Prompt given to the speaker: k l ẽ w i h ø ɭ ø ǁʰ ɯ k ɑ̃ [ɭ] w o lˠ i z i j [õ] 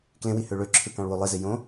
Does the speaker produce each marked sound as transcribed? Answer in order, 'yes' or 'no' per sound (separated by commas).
yes, yes